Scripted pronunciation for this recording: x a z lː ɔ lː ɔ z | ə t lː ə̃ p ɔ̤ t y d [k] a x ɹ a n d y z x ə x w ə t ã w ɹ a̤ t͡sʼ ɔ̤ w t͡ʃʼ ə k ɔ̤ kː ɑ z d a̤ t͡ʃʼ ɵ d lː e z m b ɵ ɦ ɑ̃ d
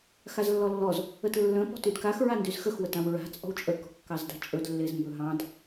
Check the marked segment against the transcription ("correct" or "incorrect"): correct